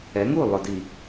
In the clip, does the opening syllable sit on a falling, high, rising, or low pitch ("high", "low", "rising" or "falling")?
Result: rising